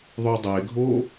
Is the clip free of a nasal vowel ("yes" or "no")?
yes